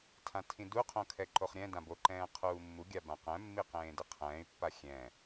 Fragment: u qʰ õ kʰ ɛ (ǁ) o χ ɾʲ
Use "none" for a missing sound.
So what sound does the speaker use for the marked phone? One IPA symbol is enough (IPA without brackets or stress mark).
ǃ